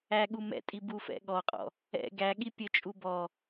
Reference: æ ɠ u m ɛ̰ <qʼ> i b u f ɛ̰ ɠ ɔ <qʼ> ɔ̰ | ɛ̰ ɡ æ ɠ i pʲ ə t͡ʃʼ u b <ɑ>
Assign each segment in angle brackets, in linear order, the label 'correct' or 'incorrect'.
incorrect: tʼ, correct, incorrect: ɔ

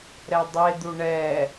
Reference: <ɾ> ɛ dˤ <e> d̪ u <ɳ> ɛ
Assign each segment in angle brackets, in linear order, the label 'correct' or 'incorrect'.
correct, correct, correct

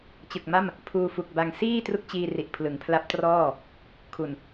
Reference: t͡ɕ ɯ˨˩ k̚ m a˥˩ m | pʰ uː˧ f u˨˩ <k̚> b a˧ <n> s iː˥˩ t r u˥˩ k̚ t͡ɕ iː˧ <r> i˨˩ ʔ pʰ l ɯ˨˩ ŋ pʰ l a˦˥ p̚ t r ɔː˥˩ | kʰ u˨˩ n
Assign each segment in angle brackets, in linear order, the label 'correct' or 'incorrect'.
correct, incorrect: ŋ, correct

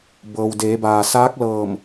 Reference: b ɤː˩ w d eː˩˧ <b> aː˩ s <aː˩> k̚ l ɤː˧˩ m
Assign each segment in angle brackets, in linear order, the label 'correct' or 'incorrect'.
correct, incorrect: aː˧˥

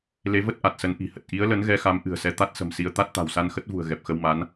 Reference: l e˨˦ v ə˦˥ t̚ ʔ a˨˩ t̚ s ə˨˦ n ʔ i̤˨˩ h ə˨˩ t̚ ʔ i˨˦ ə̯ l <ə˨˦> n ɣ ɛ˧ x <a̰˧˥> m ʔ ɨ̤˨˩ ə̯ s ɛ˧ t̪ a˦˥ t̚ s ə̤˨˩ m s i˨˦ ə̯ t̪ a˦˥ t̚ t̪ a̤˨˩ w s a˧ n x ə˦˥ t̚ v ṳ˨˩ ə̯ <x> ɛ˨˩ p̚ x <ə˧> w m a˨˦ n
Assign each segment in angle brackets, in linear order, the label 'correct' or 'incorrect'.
correct, incorrect: a˨˦, incorrect: ɣ, correct

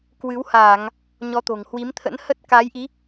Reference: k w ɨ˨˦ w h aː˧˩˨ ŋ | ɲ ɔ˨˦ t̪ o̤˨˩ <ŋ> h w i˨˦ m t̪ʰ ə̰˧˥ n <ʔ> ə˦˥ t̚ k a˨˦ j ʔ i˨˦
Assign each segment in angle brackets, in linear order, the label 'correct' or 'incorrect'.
correct, incorrect: h

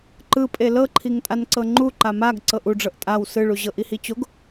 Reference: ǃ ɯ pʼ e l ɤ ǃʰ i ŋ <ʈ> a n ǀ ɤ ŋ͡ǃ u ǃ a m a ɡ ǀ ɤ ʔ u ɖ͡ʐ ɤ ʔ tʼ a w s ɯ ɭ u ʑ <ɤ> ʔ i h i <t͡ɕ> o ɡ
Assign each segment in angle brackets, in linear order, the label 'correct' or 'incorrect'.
incorrect: tʼ, correct, correct

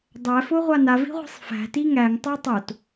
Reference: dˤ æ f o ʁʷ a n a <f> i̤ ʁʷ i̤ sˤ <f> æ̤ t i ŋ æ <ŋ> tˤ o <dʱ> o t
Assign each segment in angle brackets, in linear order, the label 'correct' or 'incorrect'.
incorrect: v, correct, correct, incorrect: tˤ

